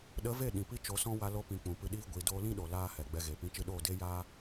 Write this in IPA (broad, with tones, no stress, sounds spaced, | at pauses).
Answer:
ɗ ə˨˦ v e˦˨ ɗ ĩ˨ p i˦ t͡ʃ o˨˦ s ɔ̃˦ w a˧ l o˧ p ĩ˨ k͡p ũ˨ p ɨ˧ ɗ iː˦ ɡʷ i˨ d oː˧ l ĩ˦ ɗ o˨ l aː˦ h ɛ˨ ɡ͡b ɛ˧ ɣ e˨ p ĩ˨˦ t͡ʃ ɨ˧ ɗ oː˦˨ d e˦ j aː˦